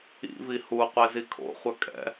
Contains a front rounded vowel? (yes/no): yes